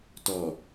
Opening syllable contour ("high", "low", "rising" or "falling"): low